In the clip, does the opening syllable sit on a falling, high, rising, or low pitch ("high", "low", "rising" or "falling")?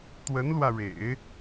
rising